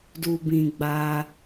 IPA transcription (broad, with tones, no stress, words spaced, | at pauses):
du˨bĩ˨ ɡ͡ba˧